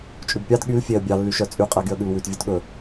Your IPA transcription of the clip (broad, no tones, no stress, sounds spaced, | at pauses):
t͡ʃʼ ʉ b pʲ ɑ d ɠ y l fʲ e ə̯ bʲ ɑ lː y ʃ œ t͡sʼ y qʼ æ ɡ y ə̯ ɠ ʉ l w ʉ t vʲ ø t ɠ ɵ